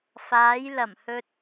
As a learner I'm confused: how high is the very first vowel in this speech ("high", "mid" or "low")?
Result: low